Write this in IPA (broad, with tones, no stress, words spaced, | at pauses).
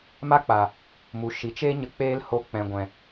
ma˦k͡pa˨ | mu˨ ʃi˨t͡ʃe˦ɲə˧ k͡peː˦lho˧k͡pɛ̃˨ɡʷɛ̃˨